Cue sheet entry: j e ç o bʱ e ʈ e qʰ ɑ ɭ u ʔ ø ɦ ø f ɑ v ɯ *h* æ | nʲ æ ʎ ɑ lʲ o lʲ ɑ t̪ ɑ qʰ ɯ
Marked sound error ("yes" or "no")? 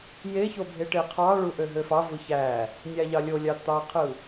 yes